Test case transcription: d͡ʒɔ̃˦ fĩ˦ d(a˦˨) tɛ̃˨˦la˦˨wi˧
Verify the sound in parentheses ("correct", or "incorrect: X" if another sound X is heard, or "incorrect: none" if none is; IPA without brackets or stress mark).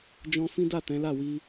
correct